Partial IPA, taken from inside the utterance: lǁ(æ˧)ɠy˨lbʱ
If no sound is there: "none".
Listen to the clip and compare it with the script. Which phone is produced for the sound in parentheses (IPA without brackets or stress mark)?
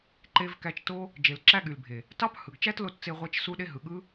æ˧